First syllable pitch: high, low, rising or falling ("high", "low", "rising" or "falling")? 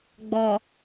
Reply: low